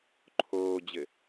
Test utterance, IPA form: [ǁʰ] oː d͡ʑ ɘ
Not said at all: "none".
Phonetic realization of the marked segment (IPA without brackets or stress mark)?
ǃʰ